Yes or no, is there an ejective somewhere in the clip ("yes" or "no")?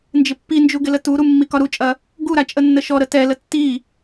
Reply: yes